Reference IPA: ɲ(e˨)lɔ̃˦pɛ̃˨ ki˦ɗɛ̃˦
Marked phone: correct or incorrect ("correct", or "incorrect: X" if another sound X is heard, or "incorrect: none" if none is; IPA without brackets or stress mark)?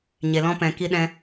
correct